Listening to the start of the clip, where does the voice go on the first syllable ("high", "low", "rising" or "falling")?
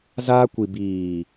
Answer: high